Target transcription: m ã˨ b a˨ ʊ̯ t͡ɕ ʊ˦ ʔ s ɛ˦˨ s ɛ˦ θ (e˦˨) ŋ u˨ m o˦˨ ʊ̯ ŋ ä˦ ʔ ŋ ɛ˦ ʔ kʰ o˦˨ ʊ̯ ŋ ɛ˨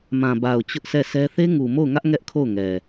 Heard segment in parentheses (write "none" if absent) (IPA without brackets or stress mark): e˦